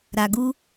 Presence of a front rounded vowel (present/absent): absent